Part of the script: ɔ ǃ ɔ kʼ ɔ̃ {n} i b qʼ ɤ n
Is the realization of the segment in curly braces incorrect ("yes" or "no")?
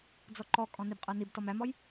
no